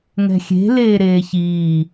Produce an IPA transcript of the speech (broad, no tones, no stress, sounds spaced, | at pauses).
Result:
ŋ ɛ̤ xʲ e̤ l eː ɾ eː ç iː